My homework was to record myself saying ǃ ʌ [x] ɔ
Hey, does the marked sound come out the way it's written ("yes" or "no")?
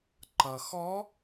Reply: yes